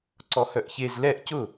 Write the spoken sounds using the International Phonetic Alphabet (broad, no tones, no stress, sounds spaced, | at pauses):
ǀ ɔ h œ ʔ ç e z l ɛ ʔ c ʊ